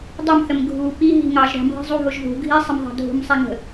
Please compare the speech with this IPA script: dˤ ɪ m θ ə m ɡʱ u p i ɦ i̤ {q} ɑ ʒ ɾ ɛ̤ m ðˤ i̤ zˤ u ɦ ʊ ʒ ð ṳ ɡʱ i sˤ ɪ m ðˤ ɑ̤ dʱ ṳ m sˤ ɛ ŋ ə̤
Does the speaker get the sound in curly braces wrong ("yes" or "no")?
yes